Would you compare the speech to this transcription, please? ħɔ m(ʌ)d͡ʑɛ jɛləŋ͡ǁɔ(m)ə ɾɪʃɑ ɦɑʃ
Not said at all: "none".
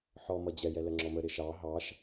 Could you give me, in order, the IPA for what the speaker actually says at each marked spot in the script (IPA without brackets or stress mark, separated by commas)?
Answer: ʌ, m